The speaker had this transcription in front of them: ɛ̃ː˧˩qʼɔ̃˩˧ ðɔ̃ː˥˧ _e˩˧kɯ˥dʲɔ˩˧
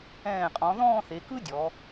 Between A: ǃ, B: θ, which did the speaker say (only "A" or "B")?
B